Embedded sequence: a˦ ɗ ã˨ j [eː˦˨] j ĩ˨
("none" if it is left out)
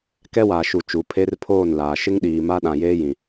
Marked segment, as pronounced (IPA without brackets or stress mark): eː˦